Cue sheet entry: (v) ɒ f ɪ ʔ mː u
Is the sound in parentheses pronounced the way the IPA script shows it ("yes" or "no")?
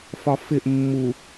no